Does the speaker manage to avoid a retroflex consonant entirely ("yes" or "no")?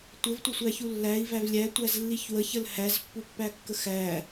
yes